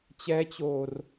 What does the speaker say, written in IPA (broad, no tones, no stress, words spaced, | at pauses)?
t͡ɕɛt͡ɕoːr